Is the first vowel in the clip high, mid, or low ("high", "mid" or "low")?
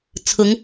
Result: high